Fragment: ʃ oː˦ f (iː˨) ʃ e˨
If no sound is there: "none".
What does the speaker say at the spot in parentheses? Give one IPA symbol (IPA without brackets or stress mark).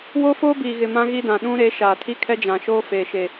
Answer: eː˨